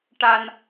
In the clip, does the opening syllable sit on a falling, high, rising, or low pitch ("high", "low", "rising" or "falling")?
low